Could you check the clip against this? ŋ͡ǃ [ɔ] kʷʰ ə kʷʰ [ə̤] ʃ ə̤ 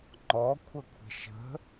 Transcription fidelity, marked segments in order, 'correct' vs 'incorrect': correct, correct

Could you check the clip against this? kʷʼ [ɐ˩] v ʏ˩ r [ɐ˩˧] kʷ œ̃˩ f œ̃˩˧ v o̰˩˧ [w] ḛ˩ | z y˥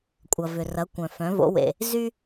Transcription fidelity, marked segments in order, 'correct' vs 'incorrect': correct, correct, correct

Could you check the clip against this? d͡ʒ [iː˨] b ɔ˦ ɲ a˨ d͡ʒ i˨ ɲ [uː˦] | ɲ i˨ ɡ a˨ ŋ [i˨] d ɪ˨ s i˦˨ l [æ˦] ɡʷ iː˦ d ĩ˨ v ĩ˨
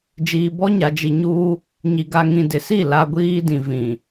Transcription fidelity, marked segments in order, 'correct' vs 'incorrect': correct, correct, incorrect, incorrect

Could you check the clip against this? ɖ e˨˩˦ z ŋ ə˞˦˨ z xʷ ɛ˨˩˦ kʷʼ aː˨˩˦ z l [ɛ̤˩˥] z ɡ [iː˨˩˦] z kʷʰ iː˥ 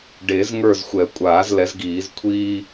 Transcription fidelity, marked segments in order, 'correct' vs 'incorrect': incorrect, correct

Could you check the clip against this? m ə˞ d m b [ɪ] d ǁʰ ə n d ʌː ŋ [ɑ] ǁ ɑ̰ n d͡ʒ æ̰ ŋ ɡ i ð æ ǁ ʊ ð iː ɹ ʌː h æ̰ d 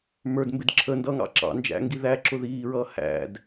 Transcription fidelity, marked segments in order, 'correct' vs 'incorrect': correct, incorrect

